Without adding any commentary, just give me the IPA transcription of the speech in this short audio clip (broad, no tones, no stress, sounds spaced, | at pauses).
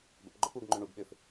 b ə̰ p ɡ͡ǃ œ p uː ɡ ŋ͡ǃ ʏ ɳ u ɡ ɓ ʏː f